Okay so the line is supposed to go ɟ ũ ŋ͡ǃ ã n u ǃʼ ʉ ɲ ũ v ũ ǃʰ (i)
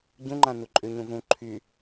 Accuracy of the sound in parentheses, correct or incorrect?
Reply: incorrect